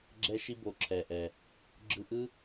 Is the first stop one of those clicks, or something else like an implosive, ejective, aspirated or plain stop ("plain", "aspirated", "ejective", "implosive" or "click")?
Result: click